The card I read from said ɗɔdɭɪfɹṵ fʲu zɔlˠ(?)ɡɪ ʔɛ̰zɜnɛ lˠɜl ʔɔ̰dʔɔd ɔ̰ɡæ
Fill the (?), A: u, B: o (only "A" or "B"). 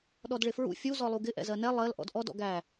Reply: A